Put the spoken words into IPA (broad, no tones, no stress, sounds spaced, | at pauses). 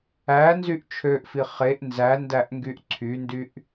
æ n z y ʔ t͡ʃʰ ø ʔ f i χ e ʔ n z æ n d æ ʔ ŋ ɡ y ʔ ǀʰ y n d y ʔ